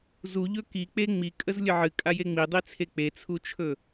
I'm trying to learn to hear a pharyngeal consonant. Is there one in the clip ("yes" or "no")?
yes